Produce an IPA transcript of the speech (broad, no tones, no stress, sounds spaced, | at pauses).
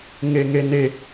ŋ e ŋ e n e